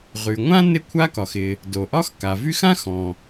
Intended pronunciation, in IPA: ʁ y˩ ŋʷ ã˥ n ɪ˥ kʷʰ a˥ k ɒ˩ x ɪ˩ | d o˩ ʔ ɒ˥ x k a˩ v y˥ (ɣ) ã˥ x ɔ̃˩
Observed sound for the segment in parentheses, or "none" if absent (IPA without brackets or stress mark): x